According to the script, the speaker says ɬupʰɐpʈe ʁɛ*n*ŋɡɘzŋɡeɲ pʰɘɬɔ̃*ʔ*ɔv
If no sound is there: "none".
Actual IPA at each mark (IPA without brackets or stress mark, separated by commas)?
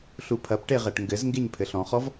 ʈ, χ